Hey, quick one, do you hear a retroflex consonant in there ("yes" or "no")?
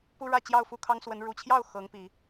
yes